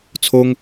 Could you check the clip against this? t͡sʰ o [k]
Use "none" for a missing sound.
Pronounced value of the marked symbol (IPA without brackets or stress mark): ŋ